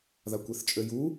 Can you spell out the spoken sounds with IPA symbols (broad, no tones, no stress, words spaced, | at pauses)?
ðakʷeθt͡ʃʼøju